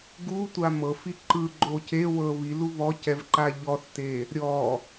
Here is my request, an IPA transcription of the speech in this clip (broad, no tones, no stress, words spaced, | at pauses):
ɡutʷa mɤfi ǃɯɡ͡ǃo ce wɤ βilu βɔcɛvǃa ʎɔθte | ɾʲɔ